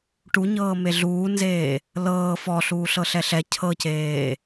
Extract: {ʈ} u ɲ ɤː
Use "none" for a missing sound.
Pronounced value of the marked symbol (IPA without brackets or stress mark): ʈ